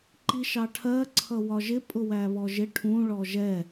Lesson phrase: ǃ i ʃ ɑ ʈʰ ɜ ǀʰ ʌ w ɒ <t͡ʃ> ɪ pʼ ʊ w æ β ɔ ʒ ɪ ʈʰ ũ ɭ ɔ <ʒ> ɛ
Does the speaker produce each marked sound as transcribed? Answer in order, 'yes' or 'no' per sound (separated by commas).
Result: no, yes